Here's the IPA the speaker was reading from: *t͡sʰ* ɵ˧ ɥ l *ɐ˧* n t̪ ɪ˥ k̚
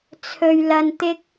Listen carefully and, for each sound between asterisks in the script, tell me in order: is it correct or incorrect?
correct, correct

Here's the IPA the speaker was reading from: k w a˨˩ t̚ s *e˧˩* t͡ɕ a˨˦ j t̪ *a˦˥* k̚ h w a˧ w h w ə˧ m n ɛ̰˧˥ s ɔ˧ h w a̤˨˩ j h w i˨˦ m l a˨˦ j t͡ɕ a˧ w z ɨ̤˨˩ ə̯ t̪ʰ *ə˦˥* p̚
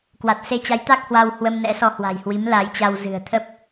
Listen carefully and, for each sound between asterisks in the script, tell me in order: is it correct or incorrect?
incorrect: e˧, correct, correct

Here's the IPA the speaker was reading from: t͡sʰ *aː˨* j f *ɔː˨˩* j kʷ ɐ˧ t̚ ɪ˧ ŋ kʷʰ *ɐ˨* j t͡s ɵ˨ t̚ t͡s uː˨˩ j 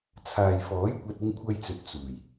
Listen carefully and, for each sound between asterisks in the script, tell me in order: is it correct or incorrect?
correct, incorrect: ɔː˨˥, incorrect: ɐ˧

